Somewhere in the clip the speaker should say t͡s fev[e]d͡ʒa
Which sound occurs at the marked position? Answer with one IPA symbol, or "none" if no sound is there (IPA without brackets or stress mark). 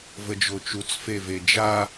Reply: e